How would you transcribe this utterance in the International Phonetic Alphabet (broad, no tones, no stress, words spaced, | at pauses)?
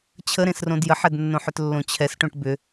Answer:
t͡ɕʰəɾẽsrõd jəħɛdnːõħʏt lːõt͡ɕʰɛsʈõʈ bʏ